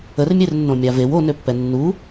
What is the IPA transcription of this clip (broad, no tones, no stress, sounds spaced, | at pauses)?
ə r mʲ e r nː õ mʲ a v e w o n ø pː ɛ nː u